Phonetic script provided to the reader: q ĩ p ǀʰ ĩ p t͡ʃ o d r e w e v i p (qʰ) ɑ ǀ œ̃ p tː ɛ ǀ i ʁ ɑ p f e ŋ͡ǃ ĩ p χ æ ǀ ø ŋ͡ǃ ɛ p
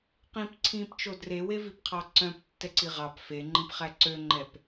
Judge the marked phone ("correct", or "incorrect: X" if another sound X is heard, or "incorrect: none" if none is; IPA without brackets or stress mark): correct